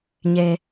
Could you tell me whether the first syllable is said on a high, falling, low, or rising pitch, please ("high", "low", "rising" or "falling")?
high